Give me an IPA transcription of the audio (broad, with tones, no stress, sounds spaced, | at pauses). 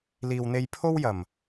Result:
l iː˨ w n̪ e˧ j pʰ o˥ w j ɐ˨˩ m